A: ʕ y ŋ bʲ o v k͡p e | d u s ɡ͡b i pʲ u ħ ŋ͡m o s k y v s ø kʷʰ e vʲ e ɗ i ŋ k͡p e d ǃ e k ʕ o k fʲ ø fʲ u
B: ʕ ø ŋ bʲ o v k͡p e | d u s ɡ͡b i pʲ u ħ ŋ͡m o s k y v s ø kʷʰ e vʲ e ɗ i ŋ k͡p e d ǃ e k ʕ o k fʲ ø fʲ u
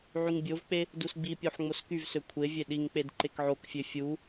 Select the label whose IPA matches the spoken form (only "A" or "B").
A